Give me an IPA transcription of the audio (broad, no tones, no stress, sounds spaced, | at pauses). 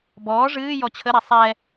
b ɔː ʐ ɨː j ɔ t͡ɕʰ ə ɾ ɛ sˤ ɛ